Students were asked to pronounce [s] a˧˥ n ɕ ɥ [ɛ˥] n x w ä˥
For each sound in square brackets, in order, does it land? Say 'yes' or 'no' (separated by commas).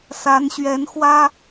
yes, no